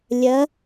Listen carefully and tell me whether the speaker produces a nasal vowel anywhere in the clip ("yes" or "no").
no